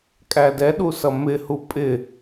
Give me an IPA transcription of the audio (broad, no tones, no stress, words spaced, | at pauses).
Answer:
kʼædɛɗu sʌmɪhu pʼɪ